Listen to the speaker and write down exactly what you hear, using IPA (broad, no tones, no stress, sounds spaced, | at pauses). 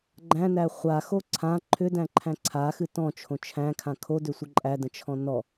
ɡ͡ǃ æ̃ n æ χʷ a x o ǀʰ ã ǃʰ ʏ d æ̃ ǃʰ æ̃ ǀʰ a x ɨ t ɔ̃ t͡ʃʰ õ t͡ʃʰ æ̃ kʰ ã kʰ o d ʏ sʷ ə ǃʼ æ d ə̃ t͡ʃʰ ɔ̃ n ɔ